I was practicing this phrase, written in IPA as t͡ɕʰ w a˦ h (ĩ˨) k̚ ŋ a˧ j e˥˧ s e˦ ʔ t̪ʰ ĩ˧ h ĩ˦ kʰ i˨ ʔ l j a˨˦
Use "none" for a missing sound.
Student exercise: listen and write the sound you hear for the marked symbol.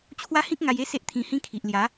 ĩ˦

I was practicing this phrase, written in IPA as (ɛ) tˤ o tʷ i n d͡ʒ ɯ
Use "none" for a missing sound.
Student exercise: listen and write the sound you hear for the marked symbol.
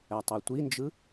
ɛ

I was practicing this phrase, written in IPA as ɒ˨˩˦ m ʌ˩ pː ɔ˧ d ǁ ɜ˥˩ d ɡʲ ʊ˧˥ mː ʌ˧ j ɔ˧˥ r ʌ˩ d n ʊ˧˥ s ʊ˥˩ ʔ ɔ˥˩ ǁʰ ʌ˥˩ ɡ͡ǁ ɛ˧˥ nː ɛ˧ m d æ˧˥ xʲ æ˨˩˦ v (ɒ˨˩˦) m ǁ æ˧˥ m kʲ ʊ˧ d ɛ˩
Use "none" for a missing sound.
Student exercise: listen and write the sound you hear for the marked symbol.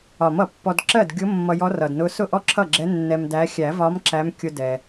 ɒ˧˥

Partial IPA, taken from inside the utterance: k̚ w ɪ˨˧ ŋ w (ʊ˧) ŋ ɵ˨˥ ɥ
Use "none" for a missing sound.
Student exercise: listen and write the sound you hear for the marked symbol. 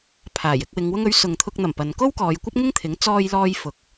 ʊ˧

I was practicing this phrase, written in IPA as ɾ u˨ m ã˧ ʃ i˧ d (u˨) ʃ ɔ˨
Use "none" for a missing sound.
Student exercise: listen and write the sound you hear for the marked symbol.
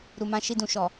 ũ˨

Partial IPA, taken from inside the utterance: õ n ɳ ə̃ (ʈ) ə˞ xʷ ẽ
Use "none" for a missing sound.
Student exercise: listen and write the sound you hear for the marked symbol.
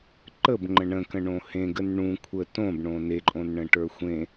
ʈ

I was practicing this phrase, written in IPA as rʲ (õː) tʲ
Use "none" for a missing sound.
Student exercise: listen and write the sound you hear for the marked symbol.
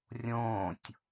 õː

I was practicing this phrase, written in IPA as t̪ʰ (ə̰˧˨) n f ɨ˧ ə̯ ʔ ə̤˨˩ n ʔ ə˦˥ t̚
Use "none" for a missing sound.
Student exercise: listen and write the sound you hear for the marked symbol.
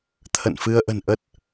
ə̰˧˨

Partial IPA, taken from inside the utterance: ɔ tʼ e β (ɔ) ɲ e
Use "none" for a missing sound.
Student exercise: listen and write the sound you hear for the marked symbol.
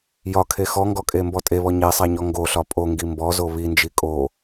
ɔ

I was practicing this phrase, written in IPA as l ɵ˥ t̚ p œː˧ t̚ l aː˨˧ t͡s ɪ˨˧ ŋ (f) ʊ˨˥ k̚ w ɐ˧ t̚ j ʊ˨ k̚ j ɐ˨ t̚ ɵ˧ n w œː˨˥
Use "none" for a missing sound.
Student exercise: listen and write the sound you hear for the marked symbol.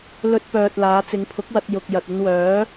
pʰ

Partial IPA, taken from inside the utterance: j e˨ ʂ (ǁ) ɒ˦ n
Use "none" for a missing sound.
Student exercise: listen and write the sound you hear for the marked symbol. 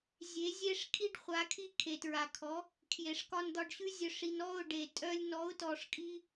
k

